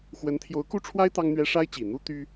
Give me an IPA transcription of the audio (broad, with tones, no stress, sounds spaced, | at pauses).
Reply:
x w ə˧˥ n t̪ʰ j o˧˥ ʊ̯ k u˥ ʈ͡ʂʰ w a˥ ɪ̯ t̪ ɑ˥ ŋ n̪ ɥ ɛ˥ ʂ a˥ ɪ̯ t͡ɕ i˨˩ n̪ u˥ t̪ y˥